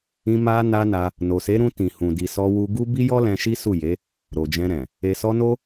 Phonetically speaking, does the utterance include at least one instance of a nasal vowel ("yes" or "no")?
yes